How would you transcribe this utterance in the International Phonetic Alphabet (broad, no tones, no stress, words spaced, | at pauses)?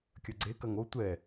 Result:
kʲɐɡ͡ǀe kɐŋo tʷɛ